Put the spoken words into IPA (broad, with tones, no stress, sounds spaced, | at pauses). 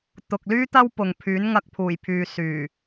t̪ ʊ˨ k̚ l yː˥ t̪ ɐ˥ w p ʊ˨ ŋ pʰ yː˨˥ n ŋ ɐ˧ k̚ pʰ uː˨˩ j pʰ yː˨ s yː˨˩